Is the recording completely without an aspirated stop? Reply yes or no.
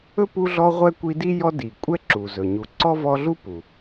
yes